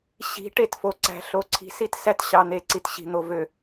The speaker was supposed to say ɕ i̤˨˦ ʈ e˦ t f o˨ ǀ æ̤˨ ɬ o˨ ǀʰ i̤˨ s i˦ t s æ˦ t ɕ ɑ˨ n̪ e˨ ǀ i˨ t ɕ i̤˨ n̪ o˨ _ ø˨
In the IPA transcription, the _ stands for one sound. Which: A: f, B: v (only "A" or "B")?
B